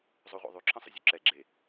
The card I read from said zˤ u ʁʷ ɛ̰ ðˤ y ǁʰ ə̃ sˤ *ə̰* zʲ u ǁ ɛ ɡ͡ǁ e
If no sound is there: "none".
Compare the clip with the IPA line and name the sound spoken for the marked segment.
ə̰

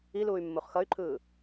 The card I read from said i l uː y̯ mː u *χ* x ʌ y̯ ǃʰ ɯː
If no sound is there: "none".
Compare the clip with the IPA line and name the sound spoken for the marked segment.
χ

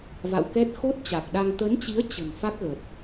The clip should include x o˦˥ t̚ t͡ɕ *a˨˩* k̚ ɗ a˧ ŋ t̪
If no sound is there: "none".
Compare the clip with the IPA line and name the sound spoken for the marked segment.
a˨˩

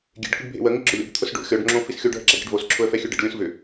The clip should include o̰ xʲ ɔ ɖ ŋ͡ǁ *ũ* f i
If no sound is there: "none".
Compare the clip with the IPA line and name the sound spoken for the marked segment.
õ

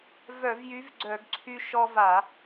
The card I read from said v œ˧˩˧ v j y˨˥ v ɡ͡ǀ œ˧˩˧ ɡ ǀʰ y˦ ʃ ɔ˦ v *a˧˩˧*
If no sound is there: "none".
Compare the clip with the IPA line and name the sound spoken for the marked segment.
a˧˩˧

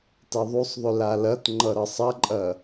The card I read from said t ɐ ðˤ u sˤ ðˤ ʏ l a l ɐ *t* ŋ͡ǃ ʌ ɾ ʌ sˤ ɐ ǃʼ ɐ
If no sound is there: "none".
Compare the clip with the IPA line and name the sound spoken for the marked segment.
t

